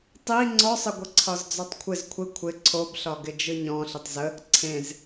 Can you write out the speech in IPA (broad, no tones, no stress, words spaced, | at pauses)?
tˤi ŋ͡ǀɔsˤəɡʷəǀʰɒz d͡zɔtˤkʷʰɪz kʷʰɪ kʷʰɪ ǀʰobɬɒɡɪ d͡ʒɯɲɔ̃ ɬɪtˤzə | ǀʰẽz